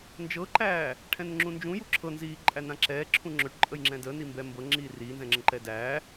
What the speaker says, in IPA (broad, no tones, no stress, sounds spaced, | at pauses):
n d͡ʒ ɤ ǃ æː | ʈʰ ɛ̃ n ŋ͡ǁ ũ n d͡ʒ ũ j u ǁʰ ɤ n z iː ǃʼ æ n ã ǁ ɛː ǁʰ ũ ŋ͡ǁ ɵ ʈ ǃʼ ə j ŋ͡ǁ ɛ̃ d ə n i m b ɛ m b ɤ ŋ͡ǁ iː r iː n z ɛ̃ ŋ͡ǁ ə̃ ǃ ɛ d æː